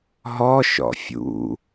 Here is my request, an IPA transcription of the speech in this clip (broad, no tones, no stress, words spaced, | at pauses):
ɦɔ ʃɔ̰fʲṵ